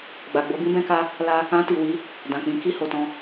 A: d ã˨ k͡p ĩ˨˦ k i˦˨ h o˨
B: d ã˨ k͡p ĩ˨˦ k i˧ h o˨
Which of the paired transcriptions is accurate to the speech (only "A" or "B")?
A